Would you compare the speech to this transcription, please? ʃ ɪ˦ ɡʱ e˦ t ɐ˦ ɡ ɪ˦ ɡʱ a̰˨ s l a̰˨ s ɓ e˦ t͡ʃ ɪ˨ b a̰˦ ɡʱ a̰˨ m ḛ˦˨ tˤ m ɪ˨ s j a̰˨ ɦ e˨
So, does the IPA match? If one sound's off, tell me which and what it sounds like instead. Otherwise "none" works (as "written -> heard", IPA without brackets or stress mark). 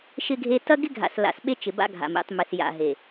none